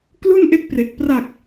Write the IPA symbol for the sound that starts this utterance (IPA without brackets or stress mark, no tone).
k